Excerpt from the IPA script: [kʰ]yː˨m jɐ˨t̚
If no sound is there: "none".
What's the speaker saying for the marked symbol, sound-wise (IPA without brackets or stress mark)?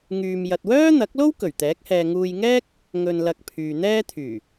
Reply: ŋ